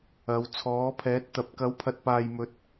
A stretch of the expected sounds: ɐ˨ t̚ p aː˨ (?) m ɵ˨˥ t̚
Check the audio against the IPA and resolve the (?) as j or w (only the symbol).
j